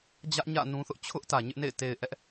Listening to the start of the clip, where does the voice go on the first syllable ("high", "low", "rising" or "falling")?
high